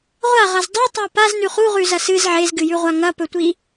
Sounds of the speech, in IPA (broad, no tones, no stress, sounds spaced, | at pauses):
ʁʷ a ʁ ɐ z dˤ o tˤ a p a z n ʉ χ u ʁ ʉ z ɐ s ɨ z ʕ e z ɡ ɨ j ʉ ʁʷ a ŋ ɐ p ɵ tʷ i